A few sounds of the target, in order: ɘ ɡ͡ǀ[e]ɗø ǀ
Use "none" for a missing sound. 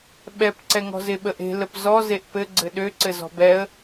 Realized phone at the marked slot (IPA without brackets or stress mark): ɘ